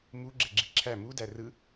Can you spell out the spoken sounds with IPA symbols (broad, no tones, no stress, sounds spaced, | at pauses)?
m u ɡ͡ǁ e ɡ͡ǁ i ǁʰ æ m u d æ r ɯ